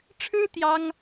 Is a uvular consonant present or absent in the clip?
absent